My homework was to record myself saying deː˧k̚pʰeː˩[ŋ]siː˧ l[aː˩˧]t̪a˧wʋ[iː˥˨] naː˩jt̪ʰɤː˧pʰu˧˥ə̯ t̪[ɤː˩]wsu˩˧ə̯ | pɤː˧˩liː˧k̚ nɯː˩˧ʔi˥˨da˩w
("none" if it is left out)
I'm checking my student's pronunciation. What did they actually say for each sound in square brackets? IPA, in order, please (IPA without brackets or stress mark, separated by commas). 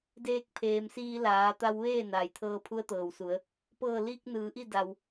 m, aː˩˧, eː˥˨, ɤː˩